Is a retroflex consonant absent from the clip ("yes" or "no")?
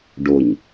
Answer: no